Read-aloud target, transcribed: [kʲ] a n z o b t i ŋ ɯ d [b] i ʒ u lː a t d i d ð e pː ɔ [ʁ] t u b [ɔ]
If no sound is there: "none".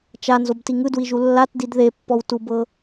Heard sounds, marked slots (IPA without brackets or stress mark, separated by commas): t͡ʃ, w, w, ɤ